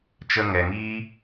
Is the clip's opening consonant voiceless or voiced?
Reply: voiceless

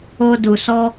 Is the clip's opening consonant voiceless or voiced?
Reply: voiced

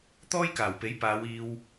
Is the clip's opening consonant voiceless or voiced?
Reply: voiceless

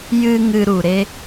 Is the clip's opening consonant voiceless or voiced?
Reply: voiced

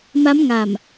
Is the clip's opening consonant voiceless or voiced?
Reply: voiced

